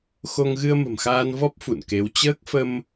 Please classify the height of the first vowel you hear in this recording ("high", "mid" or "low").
mid